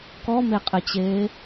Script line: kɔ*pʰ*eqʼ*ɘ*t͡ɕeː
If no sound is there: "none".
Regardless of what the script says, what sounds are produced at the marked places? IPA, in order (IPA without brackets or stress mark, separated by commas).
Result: m, ɘ